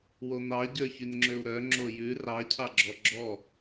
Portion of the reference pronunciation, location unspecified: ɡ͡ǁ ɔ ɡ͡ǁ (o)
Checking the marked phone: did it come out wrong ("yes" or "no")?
yes